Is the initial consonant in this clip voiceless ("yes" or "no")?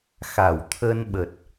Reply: yes